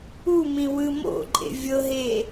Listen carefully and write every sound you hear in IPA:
u m ĩ w ɯ m o̰ ǃʼ ḛ vʲ ɤ ɦ e

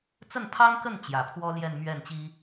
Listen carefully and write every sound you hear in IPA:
t͡s ə˥˩ n pʰ ɑ˥ ŋ k ə˥˩ n t͡ɕ j ä˨˩ pʰ w ɔ˥ l j ɛ˥˧ n m ɥ ɛ˥˩ n t͡ɕ i˥

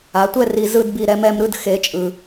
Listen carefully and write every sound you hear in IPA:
a˩˧ tʷ ɛ˥˧ r i˧ z ɯ˥˧ d b i˧ ɾ ɛ˩˧ m ɛ˧ m ɾ ɯ˥˧ d x e˩˧ t͡ʃʼ ɯ˩

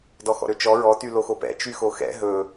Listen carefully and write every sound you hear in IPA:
d ɔ x ɔ̰ ɾ ø t͡ʃ ɔ ɹ ɔ t y l o x o p ɛ̰ t͡ʃ y x o x ɛ̰ ɦ ɵ

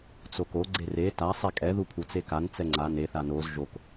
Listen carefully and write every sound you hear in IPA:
t͡s o k o ɡ͡ǀ e r e t a sˤ e kʼ ɛ ð u pʰ u t͡s e k a n t͡s ɛ ŋ͡ǀ a n e θ a n o z ʒ o k

